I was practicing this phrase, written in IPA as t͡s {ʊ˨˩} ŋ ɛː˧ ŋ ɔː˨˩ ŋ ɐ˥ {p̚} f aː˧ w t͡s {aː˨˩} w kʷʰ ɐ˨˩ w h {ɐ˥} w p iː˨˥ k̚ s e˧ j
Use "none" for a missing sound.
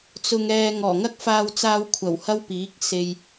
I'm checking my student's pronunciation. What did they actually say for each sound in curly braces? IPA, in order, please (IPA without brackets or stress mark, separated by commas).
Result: ʊ˧, k̚, aː˧, ɐ˥